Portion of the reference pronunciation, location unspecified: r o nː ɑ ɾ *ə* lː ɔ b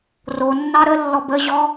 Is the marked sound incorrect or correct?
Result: correct